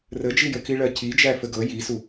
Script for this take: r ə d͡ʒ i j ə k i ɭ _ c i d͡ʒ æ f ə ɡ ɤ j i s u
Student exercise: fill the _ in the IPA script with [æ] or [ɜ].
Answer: ɜ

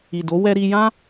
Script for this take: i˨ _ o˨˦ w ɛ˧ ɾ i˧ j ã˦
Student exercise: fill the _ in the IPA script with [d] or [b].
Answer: d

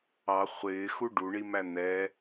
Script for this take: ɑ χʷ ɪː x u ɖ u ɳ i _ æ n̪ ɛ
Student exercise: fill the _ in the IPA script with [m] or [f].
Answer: m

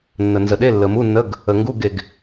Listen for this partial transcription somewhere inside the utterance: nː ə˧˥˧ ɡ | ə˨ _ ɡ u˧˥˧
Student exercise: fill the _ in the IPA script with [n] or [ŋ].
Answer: ŋ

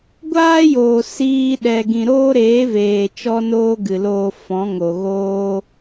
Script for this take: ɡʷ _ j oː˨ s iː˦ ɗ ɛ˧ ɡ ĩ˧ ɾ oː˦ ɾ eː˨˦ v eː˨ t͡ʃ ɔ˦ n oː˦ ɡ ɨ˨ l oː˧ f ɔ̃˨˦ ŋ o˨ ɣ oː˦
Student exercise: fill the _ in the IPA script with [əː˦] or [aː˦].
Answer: aː˦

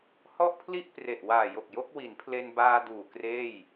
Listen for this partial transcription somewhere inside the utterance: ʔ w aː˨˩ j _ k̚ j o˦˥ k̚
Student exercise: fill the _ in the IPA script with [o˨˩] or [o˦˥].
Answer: o˨˩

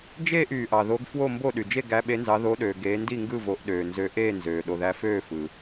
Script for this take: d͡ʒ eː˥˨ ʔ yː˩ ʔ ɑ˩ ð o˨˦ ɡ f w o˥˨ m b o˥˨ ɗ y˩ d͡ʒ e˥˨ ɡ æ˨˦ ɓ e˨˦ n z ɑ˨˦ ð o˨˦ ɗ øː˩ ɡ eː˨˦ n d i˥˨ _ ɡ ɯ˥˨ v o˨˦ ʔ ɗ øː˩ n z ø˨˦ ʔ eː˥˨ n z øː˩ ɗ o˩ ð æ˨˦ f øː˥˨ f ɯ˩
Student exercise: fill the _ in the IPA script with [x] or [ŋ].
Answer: ŋ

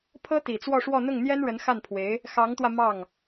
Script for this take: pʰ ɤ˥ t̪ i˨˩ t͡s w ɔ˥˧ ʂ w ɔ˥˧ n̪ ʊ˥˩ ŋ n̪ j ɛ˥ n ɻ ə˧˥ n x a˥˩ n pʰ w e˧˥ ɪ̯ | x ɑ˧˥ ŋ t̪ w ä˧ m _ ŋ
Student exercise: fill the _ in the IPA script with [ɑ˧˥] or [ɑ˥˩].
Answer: ɑ˥˩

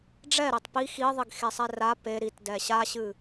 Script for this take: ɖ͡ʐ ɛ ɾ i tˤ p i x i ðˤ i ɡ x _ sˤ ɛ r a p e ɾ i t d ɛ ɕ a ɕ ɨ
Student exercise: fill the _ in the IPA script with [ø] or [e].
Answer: e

